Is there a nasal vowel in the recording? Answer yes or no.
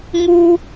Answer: no